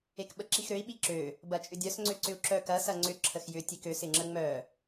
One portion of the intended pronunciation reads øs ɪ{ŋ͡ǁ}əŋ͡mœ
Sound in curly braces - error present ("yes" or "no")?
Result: no